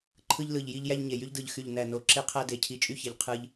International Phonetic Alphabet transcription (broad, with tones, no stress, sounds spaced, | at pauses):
ǃʰ ɯ˧ ʎ l ɯ˨˩ ʎ j i˧ ʎ j æ˧ ʎ ɲ e˨˩ j y˧ ʎ d ɯ˨˩ ʎ x y˨˩ ʎ n æ˨˩ n o˨˩ ǁ e˧ qʰ æ˧ d e˨˩ cʰ i˨˩ t͡ʃʼ y˧ ç e˨˩ ʎ qʰ ɯ˧ ʎ